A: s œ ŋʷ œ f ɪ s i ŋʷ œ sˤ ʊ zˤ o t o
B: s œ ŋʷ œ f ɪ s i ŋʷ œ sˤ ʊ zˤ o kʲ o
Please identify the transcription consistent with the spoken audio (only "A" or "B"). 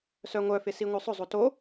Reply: A